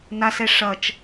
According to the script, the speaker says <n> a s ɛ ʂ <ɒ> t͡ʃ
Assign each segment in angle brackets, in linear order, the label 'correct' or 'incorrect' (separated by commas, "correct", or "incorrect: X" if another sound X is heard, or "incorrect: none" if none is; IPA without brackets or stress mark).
correct, incorrect: ʌ